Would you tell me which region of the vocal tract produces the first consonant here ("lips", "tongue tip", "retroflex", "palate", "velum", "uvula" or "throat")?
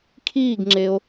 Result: velum